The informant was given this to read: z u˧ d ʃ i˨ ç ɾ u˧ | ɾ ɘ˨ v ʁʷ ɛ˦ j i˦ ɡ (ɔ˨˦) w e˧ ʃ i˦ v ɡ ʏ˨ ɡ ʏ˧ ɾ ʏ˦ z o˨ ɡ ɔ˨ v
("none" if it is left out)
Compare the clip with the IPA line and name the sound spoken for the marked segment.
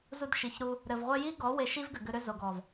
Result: ɔ˨˦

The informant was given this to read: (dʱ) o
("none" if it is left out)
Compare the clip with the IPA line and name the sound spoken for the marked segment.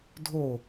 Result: dʱ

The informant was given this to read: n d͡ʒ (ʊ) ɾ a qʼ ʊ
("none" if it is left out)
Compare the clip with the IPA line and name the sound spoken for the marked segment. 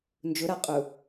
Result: ʊ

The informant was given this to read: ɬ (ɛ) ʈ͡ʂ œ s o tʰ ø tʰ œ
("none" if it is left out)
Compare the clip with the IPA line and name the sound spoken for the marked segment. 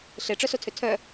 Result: e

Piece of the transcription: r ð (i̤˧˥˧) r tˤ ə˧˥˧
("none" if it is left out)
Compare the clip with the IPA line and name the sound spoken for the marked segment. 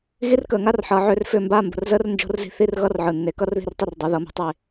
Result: i̤˧˥˧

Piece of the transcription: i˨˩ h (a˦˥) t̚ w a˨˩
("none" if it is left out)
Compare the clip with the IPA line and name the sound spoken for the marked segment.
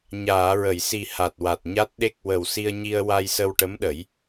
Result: a˨˩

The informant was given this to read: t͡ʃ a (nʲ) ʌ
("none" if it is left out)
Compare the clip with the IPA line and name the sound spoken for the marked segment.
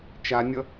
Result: nʲ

